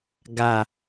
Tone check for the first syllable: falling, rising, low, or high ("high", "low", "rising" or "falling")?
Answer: low